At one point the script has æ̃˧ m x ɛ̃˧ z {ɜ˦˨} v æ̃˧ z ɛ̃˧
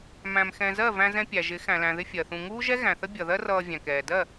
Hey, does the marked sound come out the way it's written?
yes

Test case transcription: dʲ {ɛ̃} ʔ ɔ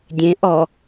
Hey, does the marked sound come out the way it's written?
no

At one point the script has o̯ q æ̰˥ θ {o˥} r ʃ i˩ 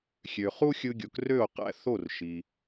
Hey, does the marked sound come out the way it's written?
no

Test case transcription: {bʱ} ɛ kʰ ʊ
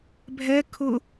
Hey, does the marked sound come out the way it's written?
yes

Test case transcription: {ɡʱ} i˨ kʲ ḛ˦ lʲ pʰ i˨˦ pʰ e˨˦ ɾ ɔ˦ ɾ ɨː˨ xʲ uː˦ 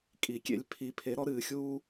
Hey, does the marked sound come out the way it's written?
no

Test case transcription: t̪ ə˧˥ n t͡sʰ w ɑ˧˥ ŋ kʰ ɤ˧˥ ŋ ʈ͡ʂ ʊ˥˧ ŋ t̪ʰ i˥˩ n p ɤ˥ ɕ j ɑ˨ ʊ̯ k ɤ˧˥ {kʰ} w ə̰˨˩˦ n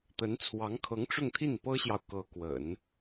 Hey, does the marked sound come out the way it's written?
no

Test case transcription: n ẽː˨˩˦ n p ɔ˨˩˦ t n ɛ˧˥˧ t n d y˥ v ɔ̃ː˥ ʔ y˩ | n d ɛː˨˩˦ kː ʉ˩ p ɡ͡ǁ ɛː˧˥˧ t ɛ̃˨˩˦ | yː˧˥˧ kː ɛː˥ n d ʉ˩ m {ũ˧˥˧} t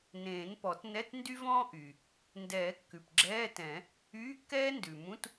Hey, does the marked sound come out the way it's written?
yes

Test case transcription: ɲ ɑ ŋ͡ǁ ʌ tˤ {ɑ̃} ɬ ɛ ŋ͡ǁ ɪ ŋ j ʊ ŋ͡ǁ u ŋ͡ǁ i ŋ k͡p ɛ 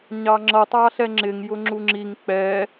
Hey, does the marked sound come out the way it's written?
no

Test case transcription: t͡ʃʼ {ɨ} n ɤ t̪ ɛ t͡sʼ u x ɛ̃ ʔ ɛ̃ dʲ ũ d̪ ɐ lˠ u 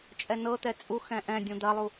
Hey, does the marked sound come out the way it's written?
no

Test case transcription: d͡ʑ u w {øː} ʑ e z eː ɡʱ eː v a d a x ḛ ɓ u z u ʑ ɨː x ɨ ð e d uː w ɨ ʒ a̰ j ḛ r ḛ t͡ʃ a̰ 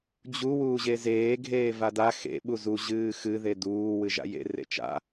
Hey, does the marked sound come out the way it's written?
no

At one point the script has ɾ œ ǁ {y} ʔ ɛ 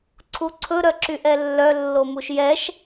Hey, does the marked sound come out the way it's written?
yes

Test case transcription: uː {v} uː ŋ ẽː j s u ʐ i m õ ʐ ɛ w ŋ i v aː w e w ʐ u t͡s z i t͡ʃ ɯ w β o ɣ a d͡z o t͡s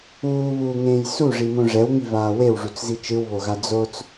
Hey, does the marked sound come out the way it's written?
no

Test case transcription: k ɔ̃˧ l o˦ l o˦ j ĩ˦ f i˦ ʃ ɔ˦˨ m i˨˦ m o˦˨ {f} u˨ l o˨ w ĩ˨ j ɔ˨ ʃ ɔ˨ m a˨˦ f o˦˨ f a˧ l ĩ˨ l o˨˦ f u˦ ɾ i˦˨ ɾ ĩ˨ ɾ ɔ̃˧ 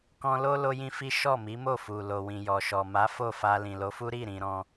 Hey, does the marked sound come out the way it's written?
yes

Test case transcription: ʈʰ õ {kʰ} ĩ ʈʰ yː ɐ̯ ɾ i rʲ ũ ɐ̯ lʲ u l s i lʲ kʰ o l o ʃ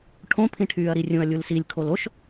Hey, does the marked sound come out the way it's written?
no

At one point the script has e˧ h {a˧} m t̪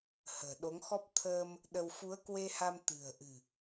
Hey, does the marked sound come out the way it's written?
yes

